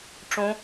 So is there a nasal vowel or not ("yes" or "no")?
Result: yes